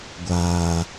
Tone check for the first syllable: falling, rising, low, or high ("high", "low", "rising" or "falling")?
low